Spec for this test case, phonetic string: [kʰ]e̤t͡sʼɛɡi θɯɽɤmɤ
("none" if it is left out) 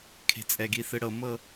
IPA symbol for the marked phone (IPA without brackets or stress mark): kʰ